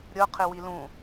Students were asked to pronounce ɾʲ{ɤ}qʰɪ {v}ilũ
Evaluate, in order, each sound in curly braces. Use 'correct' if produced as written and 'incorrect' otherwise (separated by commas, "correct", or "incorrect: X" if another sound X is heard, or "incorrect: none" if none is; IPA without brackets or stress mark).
correct, incorrect: w